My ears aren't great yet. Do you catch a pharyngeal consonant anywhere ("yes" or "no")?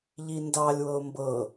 no